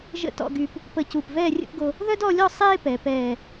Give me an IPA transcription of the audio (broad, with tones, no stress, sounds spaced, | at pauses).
ʒ ə̰˥˧ t ɔ̰˥˧ ɡ y˧ p | p ə˧ c u˧˩ p v ɛː˥˧ rʲ ə̰˥˧ p ɡ o˧ | ð œ˥ d ɔ˥˧ lʲ ɔ˥˧ sˤ eː˥ p ɛ˩˧ p ɛː˧˩